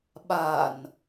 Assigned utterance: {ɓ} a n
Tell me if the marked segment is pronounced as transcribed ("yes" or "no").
yes